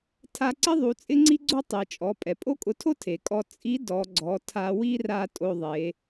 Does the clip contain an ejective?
yes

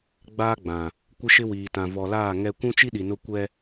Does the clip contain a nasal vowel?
yes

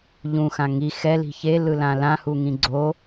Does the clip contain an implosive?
no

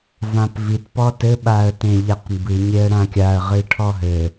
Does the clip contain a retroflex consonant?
yes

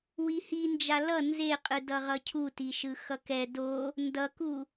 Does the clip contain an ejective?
yes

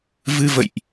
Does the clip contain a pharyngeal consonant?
no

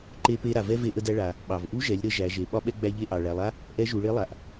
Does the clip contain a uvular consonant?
no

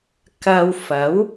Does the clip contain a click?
no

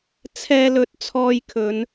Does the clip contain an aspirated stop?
yes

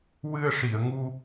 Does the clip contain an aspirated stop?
no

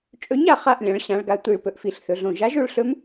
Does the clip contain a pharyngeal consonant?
no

